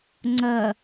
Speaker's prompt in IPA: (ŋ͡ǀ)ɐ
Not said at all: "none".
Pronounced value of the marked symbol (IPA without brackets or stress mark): ŋ͡ǀ